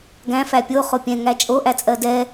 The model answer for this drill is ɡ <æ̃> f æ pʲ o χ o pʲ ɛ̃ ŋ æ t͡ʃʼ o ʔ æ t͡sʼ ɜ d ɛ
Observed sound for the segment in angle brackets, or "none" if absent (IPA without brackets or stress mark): æ̃